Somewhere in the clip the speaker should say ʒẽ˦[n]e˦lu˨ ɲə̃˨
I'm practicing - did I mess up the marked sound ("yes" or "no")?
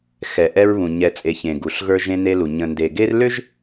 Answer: no